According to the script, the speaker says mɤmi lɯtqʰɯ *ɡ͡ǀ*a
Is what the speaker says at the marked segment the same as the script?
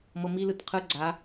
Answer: yes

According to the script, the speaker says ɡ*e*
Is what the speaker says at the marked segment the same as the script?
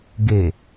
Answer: yes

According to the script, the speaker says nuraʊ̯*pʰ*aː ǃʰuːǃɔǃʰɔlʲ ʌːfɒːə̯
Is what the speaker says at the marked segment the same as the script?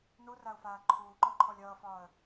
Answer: no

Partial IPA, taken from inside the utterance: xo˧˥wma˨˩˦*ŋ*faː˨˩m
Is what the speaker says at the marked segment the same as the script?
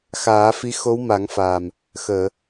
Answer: yes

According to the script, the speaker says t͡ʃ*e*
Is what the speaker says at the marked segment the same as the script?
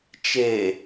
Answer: yes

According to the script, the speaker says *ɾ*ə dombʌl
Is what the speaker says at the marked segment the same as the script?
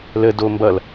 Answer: no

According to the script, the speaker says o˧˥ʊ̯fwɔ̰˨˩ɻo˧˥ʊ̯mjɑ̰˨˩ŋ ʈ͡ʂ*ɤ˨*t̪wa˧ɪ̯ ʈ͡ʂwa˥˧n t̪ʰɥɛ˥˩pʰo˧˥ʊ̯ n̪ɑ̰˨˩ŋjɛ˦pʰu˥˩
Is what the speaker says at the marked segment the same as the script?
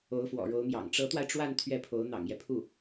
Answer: no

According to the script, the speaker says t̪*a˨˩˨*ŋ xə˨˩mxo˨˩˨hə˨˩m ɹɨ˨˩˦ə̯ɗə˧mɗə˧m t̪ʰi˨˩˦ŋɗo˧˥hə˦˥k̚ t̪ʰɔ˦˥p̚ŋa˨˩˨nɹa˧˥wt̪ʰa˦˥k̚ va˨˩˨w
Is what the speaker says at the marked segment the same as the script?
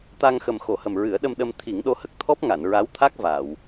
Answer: no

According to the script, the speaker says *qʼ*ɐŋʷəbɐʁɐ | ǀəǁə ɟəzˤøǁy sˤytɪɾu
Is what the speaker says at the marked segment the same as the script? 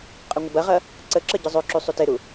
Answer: yes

